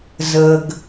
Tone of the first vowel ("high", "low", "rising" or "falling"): low